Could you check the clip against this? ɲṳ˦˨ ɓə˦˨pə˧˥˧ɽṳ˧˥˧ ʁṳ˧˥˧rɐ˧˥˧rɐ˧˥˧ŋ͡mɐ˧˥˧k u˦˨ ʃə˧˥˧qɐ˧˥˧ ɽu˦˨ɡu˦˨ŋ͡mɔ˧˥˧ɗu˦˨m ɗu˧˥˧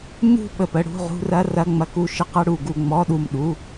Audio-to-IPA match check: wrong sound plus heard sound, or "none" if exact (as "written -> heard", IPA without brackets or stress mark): none